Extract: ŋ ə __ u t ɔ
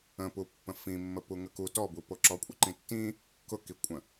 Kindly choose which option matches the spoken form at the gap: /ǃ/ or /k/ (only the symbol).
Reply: k